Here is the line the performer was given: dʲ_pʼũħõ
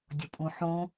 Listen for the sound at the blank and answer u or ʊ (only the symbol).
ʊ